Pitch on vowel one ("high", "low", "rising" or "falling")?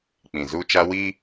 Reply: low